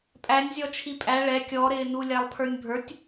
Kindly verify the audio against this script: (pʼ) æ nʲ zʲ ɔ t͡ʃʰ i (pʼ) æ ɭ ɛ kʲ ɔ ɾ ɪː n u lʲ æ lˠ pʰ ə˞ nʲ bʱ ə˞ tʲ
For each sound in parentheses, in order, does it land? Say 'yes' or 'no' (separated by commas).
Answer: yes, yes